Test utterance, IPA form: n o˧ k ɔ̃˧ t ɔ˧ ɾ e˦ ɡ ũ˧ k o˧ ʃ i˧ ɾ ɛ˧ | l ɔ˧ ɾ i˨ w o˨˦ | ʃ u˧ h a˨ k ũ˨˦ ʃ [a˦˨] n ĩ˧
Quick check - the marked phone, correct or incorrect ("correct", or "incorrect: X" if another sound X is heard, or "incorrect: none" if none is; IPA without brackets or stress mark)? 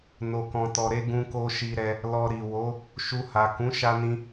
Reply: incorrect: a˧